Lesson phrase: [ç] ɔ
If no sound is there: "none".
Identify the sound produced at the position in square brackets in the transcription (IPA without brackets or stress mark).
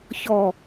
ç